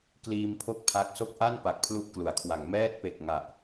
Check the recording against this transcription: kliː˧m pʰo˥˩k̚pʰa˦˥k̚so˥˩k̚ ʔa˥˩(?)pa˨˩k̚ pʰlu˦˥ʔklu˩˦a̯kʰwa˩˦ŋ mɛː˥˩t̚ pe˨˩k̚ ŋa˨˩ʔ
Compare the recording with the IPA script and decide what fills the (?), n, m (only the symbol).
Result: n